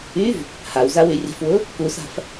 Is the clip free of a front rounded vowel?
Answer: no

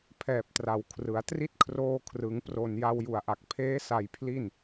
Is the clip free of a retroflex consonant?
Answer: yes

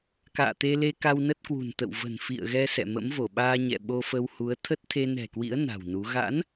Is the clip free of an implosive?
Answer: no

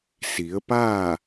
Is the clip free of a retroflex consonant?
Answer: yes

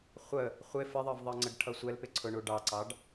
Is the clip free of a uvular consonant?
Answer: no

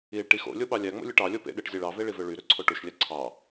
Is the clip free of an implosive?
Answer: no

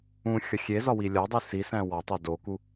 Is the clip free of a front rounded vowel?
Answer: yes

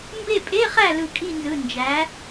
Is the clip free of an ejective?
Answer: no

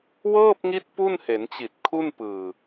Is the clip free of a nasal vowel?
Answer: yes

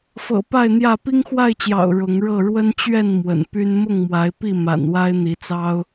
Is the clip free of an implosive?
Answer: yes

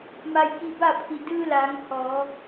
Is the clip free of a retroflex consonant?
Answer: yes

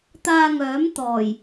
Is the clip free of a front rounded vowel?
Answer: no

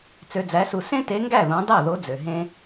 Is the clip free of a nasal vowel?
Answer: no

